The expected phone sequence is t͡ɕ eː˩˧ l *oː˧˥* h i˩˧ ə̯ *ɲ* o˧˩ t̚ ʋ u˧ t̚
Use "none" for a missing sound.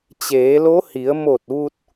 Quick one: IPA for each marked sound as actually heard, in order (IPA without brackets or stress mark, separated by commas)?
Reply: o˧˥, m